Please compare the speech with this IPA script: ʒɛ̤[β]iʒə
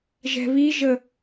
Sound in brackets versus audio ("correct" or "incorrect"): correct